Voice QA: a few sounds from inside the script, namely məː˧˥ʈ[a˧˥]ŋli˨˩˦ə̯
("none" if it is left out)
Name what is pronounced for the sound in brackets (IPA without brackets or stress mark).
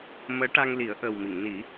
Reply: a˧